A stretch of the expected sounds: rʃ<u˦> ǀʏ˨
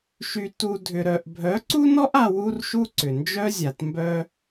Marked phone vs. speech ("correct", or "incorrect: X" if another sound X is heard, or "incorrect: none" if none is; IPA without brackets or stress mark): correct